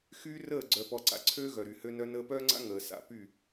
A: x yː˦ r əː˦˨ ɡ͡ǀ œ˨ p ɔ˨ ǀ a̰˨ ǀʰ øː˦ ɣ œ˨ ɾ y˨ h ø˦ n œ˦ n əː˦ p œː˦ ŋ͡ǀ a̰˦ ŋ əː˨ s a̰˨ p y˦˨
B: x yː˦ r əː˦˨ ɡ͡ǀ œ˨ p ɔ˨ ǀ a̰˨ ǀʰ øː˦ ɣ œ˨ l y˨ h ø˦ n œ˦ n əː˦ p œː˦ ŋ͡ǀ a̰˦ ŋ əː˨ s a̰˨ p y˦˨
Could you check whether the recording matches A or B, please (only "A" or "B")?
A